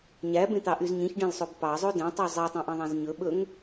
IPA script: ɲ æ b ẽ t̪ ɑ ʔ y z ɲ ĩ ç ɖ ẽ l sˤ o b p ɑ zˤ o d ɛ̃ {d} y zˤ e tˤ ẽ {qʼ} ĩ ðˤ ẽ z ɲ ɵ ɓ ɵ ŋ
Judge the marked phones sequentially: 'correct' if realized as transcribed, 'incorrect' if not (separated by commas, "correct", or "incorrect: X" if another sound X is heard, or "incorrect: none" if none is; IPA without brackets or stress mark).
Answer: incorrect: tˤ, incorrect: ʔ